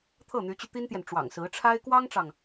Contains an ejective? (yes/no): no